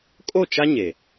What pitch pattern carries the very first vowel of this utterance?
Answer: falling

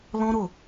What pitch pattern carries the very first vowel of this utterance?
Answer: high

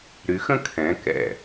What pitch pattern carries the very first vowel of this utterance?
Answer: rising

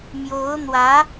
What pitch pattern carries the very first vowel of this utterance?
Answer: rising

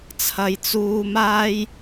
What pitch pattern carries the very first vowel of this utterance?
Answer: low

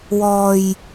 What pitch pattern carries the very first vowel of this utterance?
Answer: low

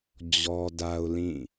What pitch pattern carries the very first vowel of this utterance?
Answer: high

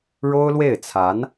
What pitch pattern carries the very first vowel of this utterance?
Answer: high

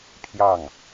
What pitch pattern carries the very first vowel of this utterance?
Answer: falling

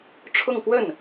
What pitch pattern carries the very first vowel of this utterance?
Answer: falling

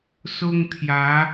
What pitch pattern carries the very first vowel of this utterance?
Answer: high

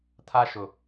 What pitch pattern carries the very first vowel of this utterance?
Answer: high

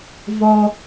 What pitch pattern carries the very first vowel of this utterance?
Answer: high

